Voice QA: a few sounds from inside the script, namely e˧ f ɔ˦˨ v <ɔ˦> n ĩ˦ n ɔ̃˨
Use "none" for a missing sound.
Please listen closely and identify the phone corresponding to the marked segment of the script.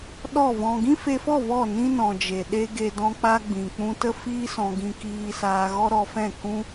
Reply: ɔ˦˨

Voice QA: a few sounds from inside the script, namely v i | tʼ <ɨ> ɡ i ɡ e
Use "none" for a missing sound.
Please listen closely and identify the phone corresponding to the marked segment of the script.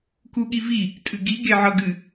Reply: ɨ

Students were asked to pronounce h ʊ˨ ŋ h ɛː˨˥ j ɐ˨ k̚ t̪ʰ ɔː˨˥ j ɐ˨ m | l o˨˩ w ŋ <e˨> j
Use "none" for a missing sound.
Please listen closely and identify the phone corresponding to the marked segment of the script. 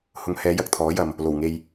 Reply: e˨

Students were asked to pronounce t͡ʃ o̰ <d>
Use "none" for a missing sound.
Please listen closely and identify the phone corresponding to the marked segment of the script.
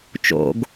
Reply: ɡ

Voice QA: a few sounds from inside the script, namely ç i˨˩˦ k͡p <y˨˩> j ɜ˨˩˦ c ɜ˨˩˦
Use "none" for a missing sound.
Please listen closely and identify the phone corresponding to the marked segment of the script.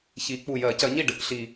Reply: u˨˩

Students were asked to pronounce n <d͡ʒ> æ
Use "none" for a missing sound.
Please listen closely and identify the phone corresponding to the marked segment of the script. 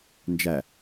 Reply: d͡ʒ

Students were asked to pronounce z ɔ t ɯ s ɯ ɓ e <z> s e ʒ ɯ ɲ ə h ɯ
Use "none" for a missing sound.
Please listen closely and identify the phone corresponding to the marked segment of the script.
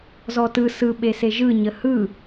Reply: none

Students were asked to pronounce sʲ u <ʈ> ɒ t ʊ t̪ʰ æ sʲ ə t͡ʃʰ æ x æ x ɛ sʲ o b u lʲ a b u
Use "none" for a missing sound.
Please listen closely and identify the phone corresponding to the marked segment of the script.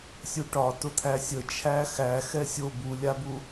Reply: ʈ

